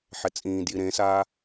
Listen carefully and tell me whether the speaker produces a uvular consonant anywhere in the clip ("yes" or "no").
no